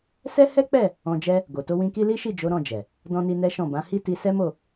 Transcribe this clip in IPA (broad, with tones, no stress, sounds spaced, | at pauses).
s ɛ˦ h ɛ˦ k͡p ɛ˦˨ | ɔ̃˧ d͡ʒ ɛ˦ | ɡ o˨ t o˧ w ĩ˧ k i˦ l i˦ ʃ i˦˨ d͡ʒ o˨˦ ɾ ɔ̃˦˨ d͡ʒ ɛ˨ | d ɔ̃˦ n i˦ n ɛ˦ ʃ ɔ̃˦˨ b ã˨˦ h i˦ t i˧ s ɛ˦ m o˦˨